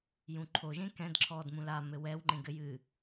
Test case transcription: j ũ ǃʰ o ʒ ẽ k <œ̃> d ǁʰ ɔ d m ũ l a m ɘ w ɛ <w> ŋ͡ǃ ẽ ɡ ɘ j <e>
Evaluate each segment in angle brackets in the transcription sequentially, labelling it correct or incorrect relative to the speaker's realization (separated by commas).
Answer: incorrect, correct, incorrect